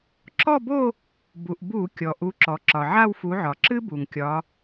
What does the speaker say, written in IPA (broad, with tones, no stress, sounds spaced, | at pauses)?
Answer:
ǁ ɔ˥˧ b o˥˧ | b u˩ ʔ b u˧˩˧ kʲ ɔ˩ ʔ u˨˦ ǁ ɔ˩ ǁ ɒ˩ ʕ a˥˧ w f u˨˦ ʕ ɒ˩ ǁ ɨ˥ b u˩ ŋ kʲ ɒ˨˦